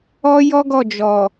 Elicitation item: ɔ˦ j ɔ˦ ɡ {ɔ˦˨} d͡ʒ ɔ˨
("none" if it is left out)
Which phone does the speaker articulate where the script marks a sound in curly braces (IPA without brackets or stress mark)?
ɔ˦˨